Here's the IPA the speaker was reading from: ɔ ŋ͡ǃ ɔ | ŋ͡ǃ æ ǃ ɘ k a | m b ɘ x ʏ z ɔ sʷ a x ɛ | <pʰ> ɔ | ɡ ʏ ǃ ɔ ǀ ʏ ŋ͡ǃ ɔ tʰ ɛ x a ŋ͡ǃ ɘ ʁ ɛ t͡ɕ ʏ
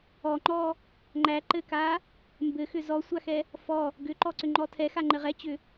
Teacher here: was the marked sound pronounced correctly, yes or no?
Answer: no